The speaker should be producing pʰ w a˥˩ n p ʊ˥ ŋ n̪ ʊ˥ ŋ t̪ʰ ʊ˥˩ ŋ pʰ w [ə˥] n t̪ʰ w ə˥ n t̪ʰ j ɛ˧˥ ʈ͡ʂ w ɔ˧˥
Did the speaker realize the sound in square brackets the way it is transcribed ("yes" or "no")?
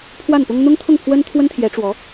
yes